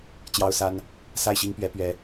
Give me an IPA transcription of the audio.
t͡ɕjɑ˦ʊ̯sa˦n | sa˥˨ɪ̯ɕi˦ŋpɥɛ˨˦ pɥɛ˨˦

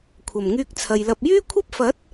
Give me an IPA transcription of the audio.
kʷʰɐ˨˩mŋyː˧k̚t͡sʰɐ˨jlɐ˧p̚ jyː˥kʷʰɐ˥p̚fɐ˨˥t̚

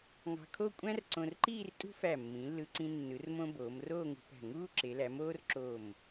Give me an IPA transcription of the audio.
ŋɑ̤˧kʰo˥˧ kʷʼæ̃˥rǀõ˧rǃiː˥˧rtʼṳ˥ fæ˧˩mːĩ˩˧lːɯ˧ǀĩ˧ nːɯ˩˧rmõ˧ boː˩˧mroː˥˧ŋṳ˧pæ̤˧˩ ŋuː˥ ǁe˩˧læ˩˧moː˥r ǁo˧˩m

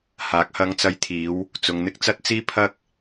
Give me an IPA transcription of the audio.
haː˨˥k̚hɐ˧ŋt͡sɐ˧jt̪ʰiː˨˧w | t͡sʊ˨ŋn̪ɪ˧k̚ t͡sɐ˥t̚t͡siː˥pʰɐ˥k̚

